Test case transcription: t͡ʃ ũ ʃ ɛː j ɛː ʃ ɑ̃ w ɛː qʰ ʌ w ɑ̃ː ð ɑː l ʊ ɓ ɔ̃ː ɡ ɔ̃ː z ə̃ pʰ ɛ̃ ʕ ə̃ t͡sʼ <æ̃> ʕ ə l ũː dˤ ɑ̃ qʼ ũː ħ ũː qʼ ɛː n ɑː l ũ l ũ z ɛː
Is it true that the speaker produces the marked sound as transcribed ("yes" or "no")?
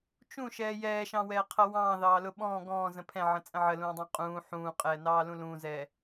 no